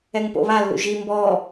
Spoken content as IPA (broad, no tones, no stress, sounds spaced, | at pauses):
ɛ ŋ p o̰ β a lː ṵ ʒ i m b ɔ